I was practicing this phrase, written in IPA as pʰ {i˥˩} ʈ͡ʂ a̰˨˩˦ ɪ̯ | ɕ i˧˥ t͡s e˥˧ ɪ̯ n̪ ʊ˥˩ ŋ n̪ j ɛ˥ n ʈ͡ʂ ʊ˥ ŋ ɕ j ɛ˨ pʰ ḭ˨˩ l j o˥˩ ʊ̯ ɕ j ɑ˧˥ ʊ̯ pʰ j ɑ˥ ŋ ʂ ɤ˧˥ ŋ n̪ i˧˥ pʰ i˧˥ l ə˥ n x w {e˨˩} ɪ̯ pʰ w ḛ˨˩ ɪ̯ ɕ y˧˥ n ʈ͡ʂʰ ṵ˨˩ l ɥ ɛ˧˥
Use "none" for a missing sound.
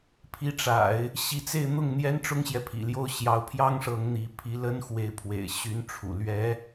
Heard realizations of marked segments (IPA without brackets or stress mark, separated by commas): i˧˥, e˧˥